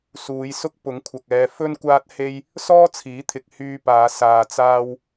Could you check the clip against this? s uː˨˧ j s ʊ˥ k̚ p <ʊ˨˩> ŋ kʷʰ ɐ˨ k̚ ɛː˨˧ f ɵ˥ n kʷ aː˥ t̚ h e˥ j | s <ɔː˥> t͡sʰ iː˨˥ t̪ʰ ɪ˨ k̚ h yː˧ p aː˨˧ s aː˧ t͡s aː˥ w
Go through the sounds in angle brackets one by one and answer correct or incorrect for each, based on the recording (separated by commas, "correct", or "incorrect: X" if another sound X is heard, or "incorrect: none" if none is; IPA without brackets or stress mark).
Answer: incorrect: ʊ˨˥, correct